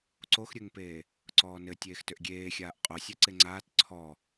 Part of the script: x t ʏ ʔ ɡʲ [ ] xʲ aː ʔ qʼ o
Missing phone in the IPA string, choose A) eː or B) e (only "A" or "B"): A